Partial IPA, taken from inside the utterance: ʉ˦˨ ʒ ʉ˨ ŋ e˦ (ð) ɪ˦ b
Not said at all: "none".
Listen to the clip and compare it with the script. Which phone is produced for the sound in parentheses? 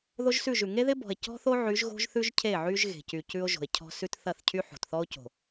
ð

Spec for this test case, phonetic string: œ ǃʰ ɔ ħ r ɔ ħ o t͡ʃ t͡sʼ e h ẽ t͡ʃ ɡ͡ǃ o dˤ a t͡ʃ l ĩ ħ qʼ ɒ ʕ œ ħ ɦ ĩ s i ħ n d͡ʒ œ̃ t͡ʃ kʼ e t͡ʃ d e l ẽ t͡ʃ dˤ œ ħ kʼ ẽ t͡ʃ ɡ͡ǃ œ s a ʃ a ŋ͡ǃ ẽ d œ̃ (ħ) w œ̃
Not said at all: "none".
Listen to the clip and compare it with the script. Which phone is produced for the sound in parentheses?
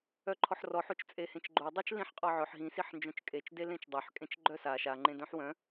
ħ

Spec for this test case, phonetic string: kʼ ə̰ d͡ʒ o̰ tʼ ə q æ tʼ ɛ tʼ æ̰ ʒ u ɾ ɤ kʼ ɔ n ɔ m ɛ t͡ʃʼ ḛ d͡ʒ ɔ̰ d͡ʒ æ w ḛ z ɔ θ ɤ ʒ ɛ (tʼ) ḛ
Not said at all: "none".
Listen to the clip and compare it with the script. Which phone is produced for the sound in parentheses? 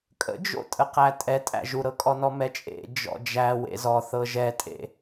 tʼ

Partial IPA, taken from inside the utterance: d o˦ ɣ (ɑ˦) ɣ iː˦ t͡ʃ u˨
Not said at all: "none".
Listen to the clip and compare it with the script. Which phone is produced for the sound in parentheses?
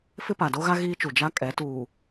a˦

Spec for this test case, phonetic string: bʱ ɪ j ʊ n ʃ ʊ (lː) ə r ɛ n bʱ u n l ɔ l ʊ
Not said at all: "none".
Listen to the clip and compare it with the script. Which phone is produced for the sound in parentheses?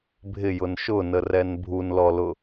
n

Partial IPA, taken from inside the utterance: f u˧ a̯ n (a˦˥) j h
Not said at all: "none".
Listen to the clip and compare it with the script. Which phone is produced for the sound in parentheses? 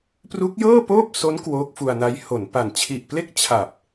a˦˥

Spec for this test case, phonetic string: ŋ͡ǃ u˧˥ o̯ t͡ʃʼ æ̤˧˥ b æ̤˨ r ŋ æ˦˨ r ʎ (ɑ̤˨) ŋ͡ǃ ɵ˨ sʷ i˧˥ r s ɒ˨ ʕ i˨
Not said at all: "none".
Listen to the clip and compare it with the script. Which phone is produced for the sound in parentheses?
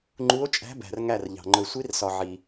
ɑ̤˨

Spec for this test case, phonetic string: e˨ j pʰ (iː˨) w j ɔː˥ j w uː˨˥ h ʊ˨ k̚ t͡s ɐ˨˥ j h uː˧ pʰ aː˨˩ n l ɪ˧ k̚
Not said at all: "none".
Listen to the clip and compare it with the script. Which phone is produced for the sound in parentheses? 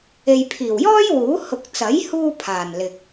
iː˨˩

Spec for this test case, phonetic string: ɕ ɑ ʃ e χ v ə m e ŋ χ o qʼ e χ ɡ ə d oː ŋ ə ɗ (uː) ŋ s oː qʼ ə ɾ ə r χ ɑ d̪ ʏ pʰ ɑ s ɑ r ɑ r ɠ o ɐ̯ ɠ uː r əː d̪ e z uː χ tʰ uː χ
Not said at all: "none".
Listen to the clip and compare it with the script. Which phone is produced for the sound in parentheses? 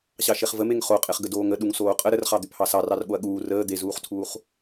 u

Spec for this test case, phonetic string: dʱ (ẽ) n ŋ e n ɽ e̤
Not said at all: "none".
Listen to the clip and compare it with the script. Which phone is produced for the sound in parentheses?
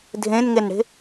ẽ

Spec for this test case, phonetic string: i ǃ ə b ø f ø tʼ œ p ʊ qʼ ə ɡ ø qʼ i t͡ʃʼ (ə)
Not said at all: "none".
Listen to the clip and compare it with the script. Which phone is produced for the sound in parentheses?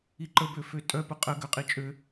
ø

